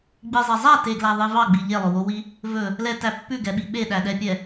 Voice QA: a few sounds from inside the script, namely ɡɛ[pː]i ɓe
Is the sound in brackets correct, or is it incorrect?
incorrect: ɓ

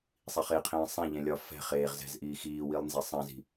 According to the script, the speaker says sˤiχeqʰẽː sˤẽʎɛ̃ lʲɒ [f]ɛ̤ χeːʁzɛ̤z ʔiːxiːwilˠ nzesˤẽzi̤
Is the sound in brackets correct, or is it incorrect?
correct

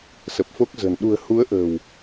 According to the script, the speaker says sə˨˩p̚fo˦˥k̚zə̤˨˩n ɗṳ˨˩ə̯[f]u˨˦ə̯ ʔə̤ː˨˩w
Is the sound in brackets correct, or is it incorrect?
incorrect: h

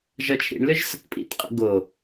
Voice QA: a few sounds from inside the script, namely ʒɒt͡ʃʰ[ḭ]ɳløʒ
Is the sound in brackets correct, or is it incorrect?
correct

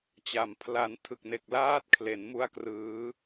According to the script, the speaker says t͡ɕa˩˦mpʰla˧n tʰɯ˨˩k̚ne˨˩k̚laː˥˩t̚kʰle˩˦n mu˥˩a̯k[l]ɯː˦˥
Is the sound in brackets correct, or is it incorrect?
incorrect: r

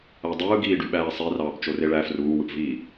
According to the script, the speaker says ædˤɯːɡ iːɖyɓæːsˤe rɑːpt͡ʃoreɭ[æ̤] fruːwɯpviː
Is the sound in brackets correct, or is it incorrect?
incorrect: æ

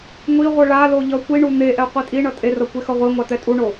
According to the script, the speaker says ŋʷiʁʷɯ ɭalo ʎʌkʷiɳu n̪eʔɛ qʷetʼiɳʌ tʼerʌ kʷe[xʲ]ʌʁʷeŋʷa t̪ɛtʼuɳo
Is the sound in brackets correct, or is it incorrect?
incorrect: x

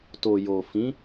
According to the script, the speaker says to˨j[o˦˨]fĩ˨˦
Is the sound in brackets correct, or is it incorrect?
incorrect: o˨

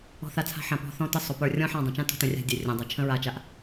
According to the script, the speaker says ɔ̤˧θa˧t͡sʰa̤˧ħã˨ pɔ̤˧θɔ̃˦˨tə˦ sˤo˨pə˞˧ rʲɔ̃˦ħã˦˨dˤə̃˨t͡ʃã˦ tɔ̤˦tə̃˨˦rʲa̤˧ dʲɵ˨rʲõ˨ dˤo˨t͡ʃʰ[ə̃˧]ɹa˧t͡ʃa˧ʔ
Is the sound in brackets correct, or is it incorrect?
incorrect: ə̃˦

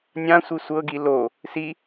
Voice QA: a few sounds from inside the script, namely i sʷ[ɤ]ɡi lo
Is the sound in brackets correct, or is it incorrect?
correct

